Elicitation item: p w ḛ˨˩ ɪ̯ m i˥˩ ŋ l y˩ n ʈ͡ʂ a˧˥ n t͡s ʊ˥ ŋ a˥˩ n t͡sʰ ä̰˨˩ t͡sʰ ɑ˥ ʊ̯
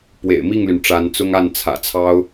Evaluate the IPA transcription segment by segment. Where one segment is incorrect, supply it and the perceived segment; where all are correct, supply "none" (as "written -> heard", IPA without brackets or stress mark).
none